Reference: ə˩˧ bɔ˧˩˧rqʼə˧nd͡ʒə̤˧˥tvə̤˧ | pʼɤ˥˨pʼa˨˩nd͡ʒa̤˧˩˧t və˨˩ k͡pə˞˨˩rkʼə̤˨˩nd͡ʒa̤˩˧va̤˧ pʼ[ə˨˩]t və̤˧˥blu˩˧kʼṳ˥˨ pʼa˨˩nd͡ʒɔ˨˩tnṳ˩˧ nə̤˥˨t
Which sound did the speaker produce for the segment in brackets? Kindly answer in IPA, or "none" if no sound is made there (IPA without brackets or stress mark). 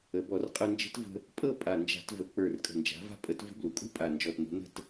ə˧˥